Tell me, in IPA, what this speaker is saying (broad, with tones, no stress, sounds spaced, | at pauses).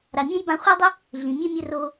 ɾ a˨ mʲ ɛ̃˦ j b ã˧ χʷ æ˦ dˤ ə˦ | ɮ ĩ˨ mʲ ɛ˦ mʲ ə˧ r oː˧